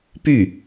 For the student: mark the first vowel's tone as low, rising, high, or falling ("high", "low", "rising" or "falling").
falling